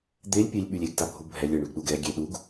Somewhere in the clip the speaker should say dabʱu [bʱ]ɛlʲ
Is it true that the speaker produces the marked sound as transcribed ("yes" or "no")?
yes